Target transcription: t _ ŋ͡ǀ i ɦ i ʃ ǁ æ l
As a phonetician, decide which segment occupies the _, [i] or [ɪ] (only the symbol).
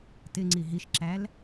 ɪ